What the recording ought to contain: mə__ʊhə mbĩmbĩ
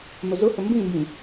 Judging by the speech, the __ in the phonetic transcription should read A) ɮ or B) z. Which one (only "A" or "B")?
B